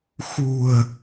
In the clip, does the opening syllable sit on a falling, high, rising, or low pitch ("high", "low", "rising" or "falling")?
low